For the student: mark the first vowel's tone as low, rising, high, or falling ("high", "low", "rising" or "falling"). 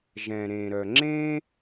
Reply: low